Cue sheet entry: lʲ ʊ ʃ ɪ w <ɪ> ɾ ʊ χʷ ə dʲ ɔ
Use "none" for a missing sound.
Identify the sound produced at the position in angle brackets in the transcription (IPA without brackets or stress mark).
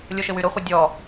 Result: y